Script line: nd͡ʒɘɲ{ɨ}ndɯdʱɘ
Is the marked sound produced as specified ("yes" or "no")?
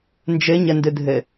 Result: no